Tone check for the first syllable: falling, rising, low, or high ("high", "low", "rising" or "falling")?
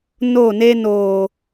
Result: falling